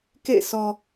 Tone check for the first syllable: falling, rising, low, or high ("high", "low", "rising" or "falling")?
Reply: falling